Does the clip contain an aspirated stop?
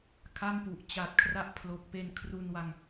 yes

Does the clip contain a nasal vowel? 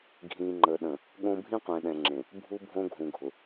yes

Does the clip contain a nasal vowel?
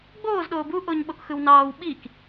no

